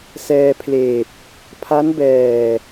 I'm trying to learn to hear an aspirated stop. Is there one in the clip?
yes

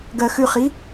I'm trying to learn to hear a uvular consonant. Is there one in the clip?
yes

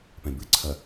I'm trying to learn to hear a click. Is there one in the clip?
yes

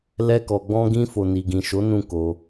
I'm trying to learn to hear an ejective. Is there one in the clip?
no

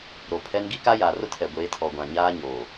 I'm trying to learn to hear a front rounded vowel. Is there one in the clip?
no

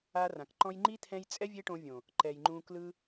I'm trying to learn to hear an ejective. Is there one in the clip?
yes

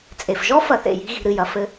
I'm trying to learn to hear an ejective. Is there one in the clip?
yes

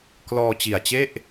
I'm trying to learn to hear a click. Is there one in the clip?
no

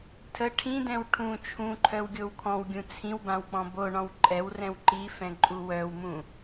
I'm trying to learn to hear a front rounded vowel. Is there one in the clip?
yes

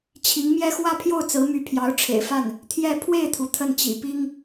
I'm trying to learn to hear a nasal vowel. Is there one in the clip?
no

